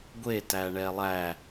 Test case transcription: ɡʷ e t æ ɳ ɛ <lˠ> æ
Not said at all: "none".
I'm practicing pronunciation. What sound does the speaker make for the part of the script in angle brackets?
lˠ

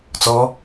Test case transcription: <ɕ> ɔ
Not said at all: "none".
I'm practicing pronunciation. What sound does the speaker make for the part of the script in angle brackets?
t͡s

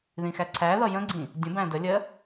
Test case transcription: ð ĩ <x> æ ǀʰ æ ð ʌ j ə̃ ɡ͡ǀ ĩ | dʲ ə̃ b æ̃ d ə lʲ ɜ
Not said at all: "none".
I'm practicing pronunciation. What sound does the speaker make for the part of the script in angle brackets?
x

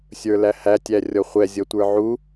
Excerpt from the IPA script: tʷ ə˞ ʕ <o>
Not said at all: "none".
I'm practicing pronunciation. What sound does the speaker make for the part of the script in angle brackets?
u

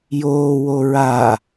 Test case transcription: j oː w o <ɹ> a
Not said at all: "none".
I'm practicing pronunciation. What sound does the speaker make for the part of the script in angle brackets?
ɹ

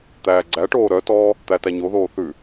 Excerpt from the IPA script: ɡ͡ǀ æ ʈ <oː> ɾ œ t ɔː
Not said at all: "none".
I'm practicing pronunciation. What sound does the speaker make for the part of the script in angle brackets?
oː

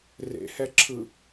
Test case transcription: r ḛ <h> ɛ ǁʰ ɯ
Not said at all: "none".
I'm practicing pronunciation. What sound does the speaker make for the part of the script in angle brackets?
h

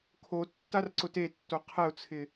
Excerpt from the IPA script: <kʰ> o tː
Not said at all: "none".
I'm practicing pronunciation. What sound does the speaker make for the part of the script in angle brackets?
kʰ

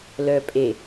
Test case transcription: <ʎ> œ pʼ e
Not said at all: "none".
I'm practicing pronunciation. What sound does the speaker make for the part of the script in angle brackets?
l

